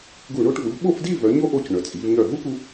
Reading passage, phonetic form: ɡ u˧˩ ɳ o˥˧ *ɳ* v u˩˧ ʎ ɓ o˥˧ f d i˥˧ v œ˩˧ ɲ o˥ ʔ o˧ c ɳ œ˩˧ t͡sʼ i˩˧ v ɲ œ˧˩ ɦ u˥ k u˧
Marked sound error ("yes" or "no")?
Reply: yes